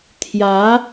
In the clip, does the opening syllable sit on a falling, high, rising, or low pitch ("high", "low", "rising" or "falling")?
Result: rising